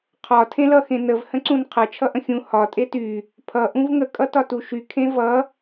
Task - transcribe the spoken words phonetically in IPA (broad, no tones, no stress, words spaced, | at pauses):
qʰɒ tʰẽlʌ xẽnəv hə̃ǀũnqʰʌ t͡ʃʰʌʔə̃xʲũ hɒ tʼety | pʰʌ ʔũvŋə kʼʌtɒtuʃy kʰẽvʌ